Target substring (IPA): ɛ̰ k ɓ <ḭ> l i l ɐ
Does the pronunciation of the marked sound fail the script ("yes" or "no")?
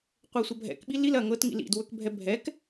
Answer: yes